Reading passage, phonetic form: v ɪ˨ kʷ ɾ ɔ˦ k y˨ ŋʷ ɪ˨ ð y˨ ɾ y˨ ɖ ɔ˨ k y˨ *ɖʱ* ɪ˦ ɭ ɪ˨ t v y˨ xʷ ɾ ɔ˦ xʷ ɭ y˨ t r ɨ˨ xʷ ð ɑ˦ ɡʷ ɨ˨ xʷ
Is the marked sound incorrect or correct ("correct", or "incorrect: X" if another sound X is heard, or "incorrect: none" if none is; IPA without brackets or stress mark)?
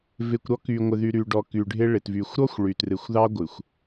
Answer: correct